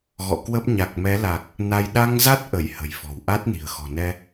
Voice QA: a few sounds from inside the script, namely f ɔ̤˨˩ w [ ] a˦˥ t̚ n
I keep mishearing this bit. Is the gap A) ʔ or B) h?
A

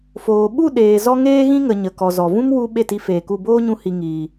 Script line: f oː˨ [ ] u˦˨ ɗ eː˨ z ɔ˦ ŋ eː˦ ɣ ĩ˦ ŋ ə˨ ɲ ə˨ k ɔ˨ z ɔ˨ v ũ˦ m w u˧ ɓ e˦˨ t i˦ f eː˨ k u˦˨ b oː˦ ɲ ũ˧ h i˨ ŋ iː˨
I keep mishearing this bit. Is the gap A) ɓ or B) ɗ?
A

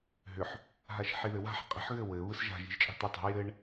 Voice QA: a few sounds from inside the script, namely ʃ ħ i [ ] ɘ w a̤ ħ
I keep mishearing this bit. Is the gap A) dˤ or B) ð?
B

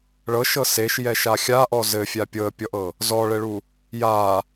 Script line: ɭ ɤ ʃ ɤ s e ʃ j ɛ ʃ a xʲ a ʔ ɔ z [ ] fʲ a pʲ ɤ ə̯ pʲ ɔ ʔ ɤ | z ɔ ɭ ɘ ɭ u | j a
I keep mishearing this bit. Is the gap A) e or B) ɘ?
B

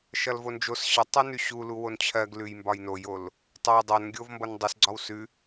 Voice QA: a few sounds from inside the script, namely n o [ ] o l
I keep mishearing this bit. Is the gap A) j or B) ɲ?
A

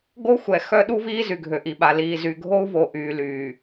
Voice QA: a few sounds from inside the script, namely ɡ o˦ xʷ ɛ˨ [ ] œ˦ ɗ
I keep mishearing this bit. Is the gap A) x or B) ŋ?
A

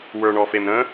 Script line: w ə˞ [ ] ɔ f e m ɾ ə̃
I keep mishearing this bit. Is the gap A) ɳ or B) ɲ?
A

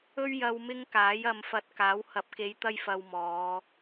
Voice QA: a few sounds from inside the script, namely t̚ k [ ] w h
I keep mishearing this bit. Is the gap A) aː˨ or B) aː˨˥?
B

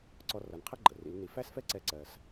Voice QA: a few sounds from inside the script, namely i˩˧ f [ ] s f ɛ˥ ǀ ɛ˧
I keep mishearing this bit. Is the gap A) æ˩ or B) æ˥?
B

